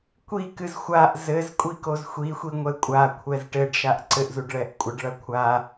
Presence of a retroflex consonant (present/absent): present